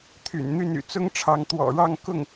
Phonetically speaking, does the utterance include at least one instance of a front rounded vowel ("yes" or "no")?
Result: yes